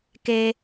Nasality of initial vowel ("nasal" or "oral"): oral